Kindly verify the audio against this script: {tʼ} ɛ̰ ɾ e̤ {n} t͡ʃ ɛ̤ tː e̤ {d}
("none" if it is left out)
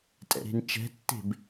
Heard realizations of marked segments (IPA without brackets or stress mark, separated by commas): tʼ, n, b